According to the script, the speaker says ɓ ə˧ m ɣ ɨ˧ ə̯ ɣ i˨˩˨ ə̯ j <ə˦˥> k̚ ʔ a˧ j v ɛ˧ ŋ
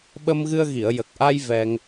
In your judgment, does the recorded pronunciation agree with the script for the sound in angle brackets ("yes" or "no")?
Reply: no